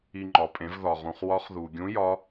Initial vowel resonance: oral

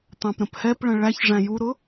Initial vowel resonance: nasal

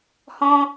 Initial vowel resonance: nasal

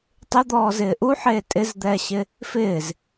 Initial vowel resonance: oral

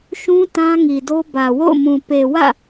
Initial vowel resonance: nasal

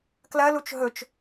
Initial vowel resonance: oral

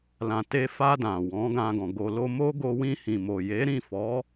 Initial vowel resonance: nasal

